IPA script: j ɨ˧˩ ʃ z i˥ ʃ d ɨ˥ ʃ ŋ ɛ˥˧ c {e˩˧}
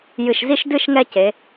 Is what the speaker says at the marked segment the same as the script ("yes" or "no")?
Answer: yes